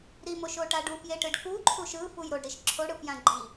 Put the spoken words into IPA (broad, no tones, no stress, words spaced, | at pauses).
ɾimoʃoʈa ɖufjeʈɯɖ kuǃʰuʃ ɯfuj ɾoɖɾiʃ ǁʰoɽɯfjã ɡ͡ǃi